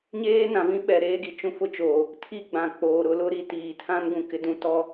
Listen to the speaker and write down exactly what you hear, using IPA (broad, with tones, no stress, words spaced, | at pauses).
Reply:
ɲeː˦nã˨vĩ˦ ɓɛ˨ɾeː˦ɡi˨ t͡ʃũ˦fʊ˦t͡ʃoː˨ | tʰi˦ɡ͡bã˨ k͡poː˨ ɾʊ˨˦lʊ˦ɾi˦ tiː˨ tʰã˦nɡũ˨ kɪ˦dũ˦tɔ˦